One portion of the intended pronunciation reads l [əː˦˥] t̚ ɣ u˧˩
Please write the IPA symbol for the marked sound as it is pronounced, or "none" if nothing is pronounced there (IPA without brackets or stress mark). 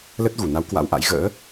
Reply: ə˦˥